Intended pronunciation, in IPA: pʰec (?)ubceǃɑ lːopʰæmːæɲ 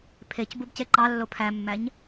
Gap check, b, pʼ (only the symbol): b